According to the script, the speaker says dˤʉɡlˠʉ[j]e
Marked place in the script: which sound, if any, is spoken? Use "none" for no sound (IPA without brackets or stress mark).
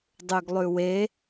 w